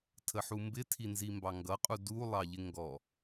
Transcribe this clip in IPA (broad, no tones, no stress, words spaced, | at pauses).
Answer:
tʰəħumbɪ tʰinzimbɑŋɡʌ qʼudu lˠɑʎɪŋɡɔ